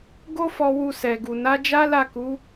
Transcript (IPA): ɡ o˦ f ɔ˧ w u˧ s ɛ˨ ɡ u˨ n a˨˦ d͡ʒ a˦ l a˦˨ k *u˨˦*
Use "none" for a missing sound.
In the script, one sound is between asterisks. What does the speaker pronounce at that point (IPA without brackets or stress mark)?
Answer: u˨˦